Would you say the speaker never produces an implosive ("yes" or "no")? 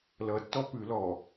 yes